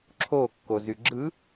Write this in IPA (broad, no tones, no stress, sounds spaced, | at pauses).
ǁʰ o kː o z y ɡ͡ǁ ɯ